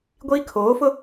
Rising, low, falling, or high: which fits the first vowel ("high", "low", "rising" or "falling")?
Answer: high